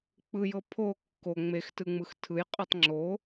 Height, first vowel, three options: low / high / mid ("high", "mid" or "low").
high